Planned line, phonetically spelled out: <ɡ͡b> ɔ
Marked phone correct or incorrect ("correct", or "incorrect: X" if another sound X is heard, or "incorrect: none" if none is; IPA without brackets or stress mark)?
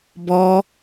incorrect: b